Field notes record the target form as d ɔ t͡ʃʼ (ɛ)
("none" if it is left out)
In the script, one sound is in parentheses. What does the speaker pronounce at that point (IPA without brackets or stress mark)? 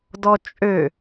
ø